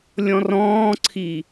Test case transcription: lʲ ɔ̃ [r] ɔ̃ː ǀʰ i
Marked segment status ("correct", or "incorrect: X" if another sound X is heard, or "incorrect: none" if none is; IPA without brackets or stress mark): correct